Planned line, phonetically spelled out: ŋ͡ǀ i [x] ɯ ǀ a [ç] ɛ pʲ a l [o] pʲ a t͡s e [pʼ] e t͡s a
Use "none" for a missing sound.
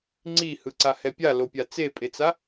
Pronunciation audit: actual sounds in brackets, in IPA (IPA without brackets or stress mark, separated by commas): h, h, o, pʼ